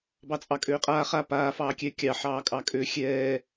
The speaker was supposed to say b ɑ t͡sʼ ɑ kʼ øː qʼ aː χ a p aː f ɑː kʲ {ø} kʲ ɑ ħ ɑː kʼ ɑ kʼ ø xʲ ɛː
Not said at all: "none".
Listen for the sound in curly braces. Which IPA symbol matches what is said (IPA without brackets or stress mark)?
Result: ɛ